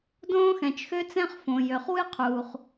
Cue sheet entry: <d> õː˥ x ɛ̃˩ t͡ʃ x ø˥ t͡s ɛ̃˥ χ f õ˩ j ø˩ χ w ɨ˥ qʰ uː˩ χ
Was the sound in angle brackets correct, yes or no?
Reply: yes